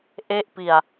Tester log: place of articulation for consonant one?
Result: glottal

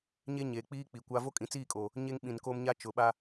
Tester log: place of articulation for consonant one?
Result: palatal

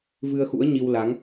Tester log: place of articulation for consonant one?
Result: labial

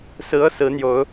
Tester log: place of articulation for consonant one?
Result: alveolar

